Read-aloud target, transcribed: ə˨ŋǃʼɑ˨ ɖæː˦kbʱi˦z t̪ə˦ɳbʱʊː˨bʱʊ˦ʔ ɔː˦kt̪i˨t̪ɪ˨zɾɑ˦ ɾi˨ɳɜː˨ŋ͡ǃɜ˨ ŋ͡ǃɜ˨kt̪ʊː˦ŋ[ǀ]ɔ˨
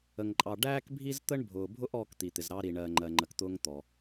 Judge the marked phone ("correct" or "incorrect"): incorrect